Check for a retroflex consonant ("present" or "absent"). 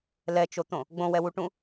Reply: present